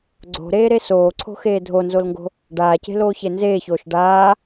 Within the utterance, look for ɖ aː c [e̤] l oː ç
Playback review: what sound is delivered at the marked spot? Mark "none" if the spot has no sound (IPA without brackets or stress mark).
e̤